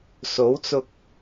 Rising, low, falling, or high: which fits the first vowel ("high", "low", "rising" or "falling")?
rising